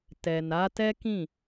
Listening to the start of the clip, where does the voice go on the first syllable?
low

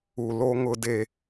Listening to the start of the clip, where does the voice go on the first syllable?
low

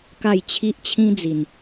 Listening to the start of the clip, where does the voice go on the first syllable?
falling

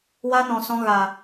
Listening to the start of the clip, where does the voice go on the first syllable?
high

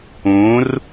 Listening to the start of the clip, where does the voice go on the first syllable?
rising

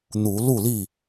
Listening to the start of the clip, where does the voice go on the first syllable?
rising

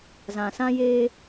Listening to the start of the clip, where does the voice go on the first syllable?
low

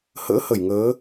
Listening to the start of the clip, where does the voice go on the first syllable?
rising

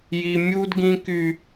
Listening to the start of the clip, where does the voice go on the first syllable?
high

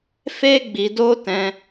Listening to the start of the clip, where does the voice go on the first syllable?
high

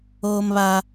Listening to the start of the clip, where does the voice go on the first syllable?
high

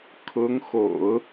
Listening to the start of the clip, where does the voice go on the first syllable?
rising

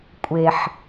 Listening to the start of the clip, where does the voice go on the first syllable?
low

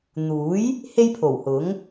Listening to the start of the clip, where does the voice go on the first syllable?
rising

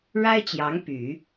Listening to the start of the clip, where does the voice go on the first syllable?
high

